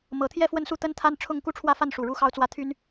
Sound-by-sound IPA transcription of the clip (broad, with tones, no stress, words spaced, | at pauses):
mɤ˨˦ t̪ʰjɛ˥˨fwə˥˨nsu˥˨ t̪ə˦nt̪ʰa˦nʈ͡ʂʰʊ˥˨ŋ ku˥˨ʈ͡ʂʰwä˥˨fa˥˨n ʂu˨˩ɻu˦xɑ˦ʊ̯t͡swä˥˨ t̪ʰy˦n